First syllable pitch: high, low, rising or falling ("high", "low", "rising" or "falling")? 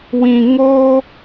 low